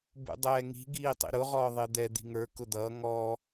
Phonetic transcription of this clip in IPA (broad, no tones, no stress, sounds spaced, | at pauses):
b ṵ dˤ ɛː ŋ i̤ ɡ iː tˤ ḭ ɾ ʊ ʁ ɔː ðˤ ɪː d̪ ɛ d̪ i̤ ŋ ə˞ k ʊ d̪ ʌː ŋ ɔ